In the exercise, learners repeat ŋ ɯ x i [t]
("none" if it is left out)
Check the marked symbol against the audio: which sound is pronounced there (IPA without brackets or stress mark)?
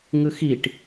ʈ